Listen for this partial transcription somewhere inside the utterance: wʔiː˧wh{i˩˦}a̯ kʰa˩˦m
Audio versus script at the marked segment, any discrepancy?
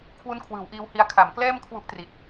yes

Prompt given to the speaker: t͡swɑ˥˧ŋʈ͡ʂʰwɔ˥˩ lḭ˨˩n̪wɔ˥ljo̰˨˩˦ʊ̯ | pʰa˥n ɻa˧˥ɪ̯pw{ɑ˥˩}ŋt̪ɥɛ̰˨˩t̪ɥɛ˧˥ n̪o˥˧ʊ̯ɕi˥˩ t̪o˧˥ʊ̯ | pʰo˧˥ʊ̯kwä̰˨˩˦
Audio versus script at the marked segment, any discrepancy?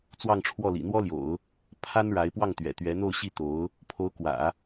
no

